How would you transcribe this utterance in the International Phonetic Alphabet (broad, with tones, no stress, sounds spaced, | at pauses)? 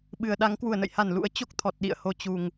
ɓ ɨ˨˩ ə̯ ɗ a˨˦ ŋ k w u˧˩ ə̯ n ə̰˧˨ j h a˧˩ n l ṵ˧˥ ə̯ t͡ɕ o˦˥ k̚ t̪ʰ ɔ˨˩ t̚ ɗ ḭ˧˨ ə̯ h o˧ t͡ɕ u˨˩ ŋ